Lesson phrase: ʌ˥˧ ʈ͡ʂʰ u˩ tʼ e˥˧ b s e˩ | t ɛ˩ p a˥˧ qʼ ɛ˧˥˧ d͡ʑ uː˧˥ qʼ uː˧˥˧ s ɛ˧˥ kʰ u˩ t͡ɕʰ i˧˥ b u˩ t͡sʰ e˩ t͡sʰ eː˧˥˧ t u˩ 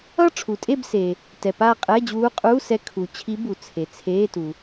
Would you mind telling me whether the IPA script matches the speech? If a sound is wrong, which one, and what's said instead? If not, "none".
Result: none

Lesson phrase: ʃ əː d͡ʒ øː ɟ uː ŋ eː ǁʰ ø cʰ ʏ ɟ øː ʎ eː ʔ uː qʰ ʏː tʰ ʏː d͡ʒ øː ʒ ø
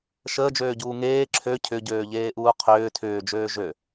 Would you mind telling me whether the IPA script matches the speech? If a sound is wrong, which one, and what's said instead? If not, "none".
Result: none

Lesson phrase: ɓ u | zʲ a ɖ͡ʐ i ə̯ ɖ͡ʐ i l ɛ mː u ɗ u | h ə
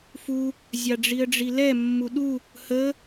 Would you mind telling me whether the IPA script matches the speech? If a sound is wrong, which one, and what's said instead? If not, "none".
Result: ɓ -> f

